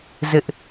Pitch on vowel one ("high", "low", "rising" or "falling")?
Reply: high